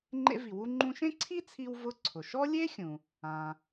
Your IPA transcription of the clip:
ŋ͡ǃ ḛ˧ v i˩ w u˧ ŋ͡ǃ ũ˧ ʃ ẽ˥ ǀʰ i˥ t͡sʰ i˧ w v ʊ˧ ǀʰ ʊ˩ ʃ ɔ˥ lʲ e˥ xʲ ũ˩ | ãː˩

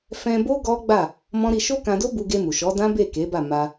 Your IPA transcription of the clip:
f ɛ̃˧ b o˦ ɡ ɔ˦ ɡ͡b a˦˨ | m ɔ̃˦ ɾ i˧ ʃ o˦ k ã˧ d o˦ b u˧ ɡ e˧ m u˨ ʃ ɔ˨˦ d ã˦ b e˦˨ k e˨˦ b a˦˨ m a˧

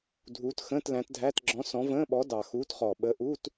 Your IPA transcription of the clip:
dʱ uː˨˥ t x ə̃ː˧˥˧ t l æ̃˨˥ t dʱ æ˧˥˧ t ɡ͡ǁ ɔ̃˨˥ s ɔ̃˨˥ v ə̃ː˧˥˧ ɓ ɔ˨˥ d ɑ˨˩ x uː˨˥ t χ ɔ˨˩ ɓ ə˨˥ ʔ uː˧˥˧ t

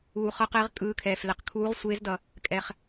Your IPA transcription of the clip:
uː˧ χ ʌ˦˥ q ɛ˦˥ ʁ kʼ ɯː˦˥ kʰ ɛː˧ f l ɛ˧˩ q kʰ uː˦˥ ʁ sʷ eː˦˥ z d ʌ˧ | kʼ ɛ˧ χ

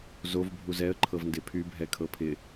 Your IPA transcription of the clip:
z o v bʱ u z ɛ ə̯ ǃʰ ɤ v n d ɪ pʰ y bʱ ɛ kʰ ɤ pʰ ɪ

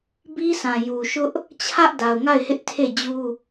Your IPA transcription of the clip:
b i˦ s ã˨ j u˨ ʃ ʊ˦ ʔ | t͡ɕʰ ä˦ ʔ d a˨ ʊ̯ ŋ a˦˨ ɪ̯ h ɪ˦ ʔ tʰ e˦˨ d͡ʑ u˦

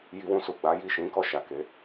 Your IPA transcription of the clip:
j i˧ w ũ˧ s u˨ ɡ͡b a˨˦ j i˦˨ ʃ ĩ˨˦ k ɔ˧ ʃ a˨ k e˨˦

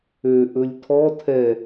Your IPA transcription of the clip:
ø ʔ ɵ lʲ tʰ ɔ tʰ ɛ

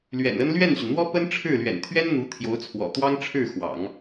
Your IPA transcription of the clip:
l ɥ ɛ̰˨˩ n ə˥ n l ɥ ɛ˥˩ n ɕ y˩ n n̪ w ɔ˥ p ə˥ n ʈ͡ʂʰ ɻ̩˥˩ l ɥ ɛ̰˨˩ n t̪ʰ ɥ ɛ˥ n n̪ u˧˥ t̪ʰ j o˧˥ ʊ̯ t͡sʰ w ɔ̰˨˩ t̪ w ɑ˥ ŋ ʈ͡ʂʰ ɻ̩˥˩ x w ɑ̰˨˩˦ ŋ

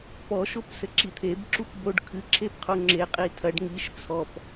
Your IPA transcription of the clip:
p ɔ ʃ o p s ɘ ǁ i t̪ʰ e b ǁ u p b o ɖ kʰ ɨ ǁʰ e p qʰ u ŋ͡ǁ e qʼ i tʰ ɐ ɖ ŋ i ʃ t͡sʰ ɔ p

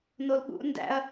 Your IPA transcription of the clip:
n o l ɠ ṵ n d æ̰ ɐ̯

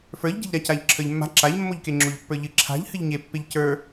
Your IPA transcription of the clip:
f ə˞ ʎ ɟ e̤ ʎ ɾ a c a ʎ ǁʰ ə˞ ʎ mː a̤ ǁ a ʎ mː o ʎ k e ŋ͡ǁ o ʎ pː ə˞ ʎ ɨ ǁʰ a̤ ʎ h ɨ ʎ ɲ e pː e ʎ c ə˞

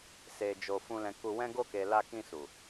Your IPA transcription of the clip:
s e˨ d͡ʒ o˨ f ũ˨ l ɛ̃˨ k u˧ w ɛ̃˦ ɡ o˧ k e˨ l a˧ k ĩ˧ s u˨

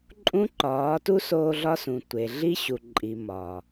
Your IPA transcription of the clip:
ǃʼ ũ˦ ǃ ɒː˨˦ t u˦ s oː˧ ɮ ɒ˦ s ũ˨ tʷ e˨ ɮ i˦ ɕ u˨ ǃʼ i˨ m ɒ˨

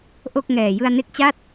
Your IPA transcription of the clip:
ʔ o˥˩ k̚ ŋ ɛː˨˩ j ɯ˧ a̯ n e˦˥ k̚ t͡ɕ a˥˩ t̚

